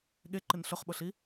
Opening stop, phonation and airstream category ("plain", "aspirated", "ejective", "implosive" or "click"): implosive